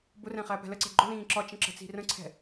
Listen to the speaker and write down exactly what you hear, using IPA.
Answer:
bʊrɛ̃χæpɛ̤ ləǀɛ̤ ɡ͡ǃʊlĩː ǁɒt͡ʃə̃ǁə̤t͡si̤ rə̃ǀʰɛ̤

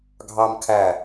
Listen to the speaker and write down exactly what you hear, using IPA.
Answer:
ɡʱɑm kʰæ

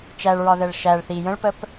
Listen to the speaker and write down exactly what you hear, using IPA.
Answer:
t͡ʃæɭɹɒðɛɭ ʃæɭ θi jə̃ɭpəp

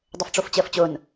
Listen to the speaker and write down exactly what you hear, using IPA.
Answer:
dˤʊfʈ͡ʂoft͡ɕəːft͡ɕʊn

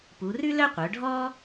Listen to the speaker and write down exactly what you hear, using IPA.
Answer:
pu˩˧rʉ˥lœ˥ qʷœ˩˧ɖʱɔ˥

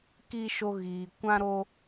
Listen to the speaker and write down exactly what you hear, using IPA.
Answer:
ki˦ʃo˦ ɣiː˧ kʷã˦ɾo˦

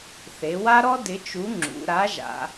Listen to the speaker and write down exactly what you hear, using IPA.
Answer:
θe˩˧wa˦ɾɔ˦ dɪ˨˥t͡ʃu˨˥ŋ͡ǁṵ˩˧ ɾa˨˥ʒa̰˩˧

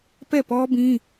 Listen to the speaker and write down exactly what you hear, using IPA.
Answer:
pɛ˦˨pɔ˦bĩ˦

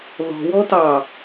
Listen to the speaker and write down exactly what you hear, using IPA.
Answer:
ðɔ̤wɔ tɑ

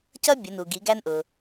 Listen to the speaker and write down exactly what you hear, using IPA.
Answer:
cʌ˥bʲə˩˧nu˩ ɡi˩˧ɡæ˧nʔʊ˩

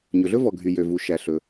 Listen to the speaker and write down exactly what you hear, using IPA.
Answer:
ɲɵ˩ɮɵ˥vɔ˩ɡʱy˩ jø˩vu˩ ʃæ˩ɬɵ˩

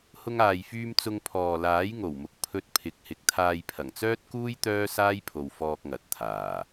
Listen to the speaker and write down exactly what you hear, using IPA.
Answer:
hʊ˧ŋaː˨jfyː˧m t͡sʊ˧ŋpʰɔː˨laː˨˥j ŋo˨˩wmʊ˨k̚ pʰɵ˧t̚ pʰɪ˨˥k̚hɪ˨˥k̚ t̪ʰaː˧jpʰɐ˨˩ŋt͡sœː˥t̚kuː˥j t̪œː˥saː˥jpʰo˨w fɔː˧k̚ŋɐ˨t̚ t̪ʰaː˨˩

